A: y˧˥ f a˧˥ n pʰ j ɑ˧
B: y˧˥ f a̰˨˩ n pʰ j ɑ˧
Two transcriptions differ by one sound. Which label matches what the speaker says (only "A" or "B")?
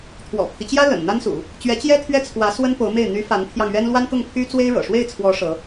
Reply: A